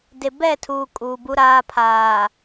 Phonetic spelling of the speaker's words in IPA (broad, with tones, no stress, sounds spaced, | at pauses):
d e˨ b ɛ˦˨ tʰ uː˨ kʼ uː˨ b u˦ ɾ aː˦ pʰ aː˨